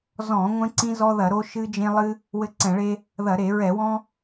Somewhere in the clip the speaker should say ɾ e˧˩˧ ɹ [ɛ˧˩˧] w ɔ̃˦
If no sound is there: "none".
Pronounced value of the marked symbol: ɛ˧˩˧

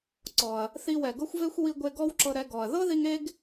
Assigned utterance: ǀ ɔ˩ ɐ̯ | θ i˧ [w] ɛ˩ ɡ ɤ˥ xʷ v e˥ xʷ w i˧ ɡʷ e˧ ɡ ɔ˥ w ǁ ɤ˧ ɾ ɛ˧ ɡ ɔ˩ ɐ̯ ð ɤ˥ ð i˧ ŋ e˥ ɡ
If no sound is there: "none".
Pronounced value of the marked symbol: w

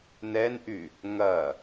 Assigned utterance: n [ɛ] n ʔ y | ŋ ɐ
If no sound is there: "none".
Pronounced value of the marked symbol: ɛ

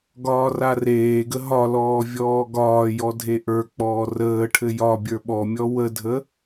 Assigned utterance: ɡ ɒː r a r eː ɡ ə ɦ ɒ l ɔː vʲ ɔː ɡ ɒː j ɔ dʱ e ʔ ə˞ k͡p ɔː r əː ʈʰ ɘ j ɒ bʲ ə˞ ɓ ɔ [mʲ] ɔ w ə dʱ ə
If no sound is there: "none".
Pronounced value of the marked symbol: mʲ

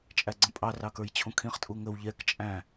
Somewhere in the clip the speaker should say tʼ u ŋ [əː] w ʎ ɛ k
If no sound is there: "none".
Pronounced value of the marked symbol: ə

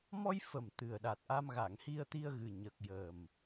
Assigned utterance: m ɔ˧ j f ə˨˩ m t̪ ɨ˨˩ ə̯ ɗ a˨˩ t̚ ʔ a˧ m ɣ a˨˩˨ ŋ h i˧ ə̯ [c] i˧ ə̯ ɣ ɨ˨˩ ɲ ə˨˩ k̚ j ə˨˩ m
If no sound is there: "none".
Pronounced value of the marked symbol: t̪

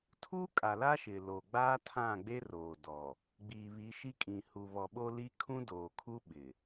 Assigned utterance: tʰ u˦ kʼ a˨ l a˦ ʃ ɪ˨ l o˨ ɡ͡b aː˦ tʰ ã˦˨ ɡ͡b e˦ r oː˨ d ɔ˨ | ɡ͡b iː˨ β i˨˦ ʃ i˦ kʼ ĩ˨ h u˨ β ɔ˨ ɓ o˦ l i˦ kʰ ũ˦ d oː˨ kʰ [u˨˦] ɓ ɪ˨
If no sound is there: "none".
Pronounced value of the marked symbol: u˦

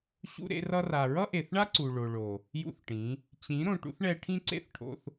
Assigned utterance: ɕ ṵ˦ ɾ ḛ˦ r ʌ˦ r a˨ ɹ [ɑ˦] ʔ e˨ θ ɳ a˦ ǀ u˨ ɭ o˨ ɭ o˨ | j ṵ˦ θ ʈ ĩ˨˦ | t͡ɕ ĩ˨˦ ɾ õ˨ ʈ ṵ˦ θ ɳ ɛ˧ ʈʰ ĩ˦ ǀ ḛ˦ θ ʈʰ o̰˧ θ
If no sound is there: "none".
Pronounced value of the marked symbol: ʌ˦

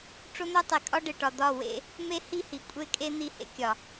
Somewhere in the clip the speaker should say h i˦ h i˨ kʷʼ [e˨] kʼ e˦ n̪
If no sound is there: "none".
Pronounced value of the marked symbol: e˦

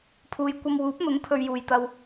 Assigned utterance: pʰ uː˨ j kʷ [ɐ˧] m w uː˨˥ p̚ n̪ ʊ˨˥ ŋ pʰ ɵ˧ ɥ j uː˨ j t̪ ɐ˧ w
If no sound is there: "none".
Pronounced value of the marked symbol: ɐ˧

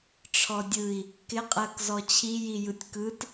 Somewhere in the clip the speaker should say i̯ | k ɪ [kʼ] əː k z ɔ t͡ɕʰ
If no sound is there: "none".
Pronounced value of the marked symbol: qʼ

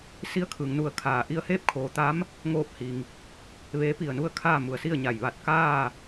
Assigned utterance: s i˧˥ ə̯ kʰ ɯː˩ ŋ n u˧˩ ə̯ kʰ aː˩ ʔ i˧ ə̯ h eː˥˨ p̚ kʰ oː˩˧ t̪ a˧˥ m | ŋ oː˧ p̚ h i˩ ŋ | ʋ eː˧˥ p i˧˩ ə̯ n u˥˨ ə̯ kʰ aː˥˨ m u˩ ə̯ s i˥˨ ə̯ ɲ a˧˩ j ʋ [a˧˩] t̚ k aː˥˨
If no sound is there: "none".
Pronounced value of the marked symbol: a˧˩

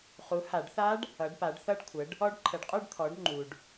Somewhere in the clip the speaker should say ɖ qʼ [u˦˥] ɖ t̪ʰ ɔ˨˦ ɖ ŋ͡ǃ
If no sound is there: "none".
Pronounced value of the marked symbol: u˥˧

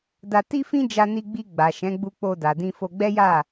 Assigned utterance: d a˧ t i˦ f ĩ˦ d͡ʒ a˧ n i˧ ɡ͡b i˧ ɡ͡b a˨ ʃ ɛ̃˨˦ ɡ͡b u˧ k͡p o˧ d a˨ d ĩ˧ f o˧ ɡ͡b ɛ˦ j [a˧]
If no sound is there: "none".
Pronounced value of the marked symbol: a˦˨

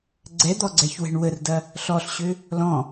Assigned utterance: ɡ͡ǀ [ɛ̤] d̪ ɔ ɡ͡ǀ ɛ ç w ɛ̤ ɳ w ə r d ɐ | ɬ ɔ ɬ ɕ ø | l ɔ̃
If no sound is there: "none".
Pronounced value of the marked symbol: ɛ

